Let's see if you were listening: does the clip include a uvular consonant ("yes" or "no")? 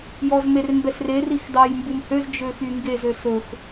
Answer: no